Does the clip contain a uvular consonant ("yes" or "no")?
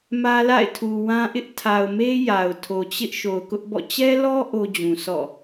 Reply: no